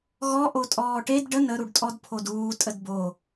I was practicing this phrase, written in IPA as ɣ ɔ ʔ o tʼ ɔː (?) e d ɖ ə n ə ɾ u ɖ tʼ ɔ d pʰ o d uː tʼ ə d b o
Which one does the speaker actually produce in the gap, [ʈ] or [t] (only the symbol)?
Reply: ʈ